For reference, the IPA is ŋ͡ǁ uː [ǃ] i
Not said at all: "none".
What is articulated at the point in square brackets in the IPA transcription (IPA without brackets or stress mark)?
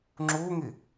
ŋ